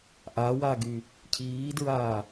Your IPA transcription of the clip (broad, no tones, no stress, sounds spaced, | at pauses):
ʔ a w a ɡ y | cʰ iː d ɹ aː